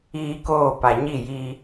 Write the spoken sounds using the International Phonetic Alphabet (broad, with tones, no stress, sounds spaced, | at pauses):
iː˦ k oː˦˨ p a˨ ɲ i˦˨ j i˦